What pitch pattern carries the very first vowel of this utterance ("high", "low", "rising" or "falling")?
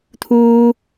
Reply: high